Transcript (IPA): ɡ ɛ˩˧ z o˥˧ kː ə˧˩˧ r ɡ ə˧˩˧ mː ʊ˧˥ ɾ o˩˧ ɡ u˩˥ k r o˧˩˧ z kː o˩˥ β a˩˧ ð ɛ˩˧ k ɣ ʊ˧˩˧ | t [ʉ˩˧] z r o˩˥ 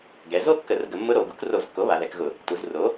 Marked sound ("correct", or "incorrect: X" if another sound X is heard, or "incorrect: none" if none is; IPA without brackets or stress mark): incorrect: u˩˧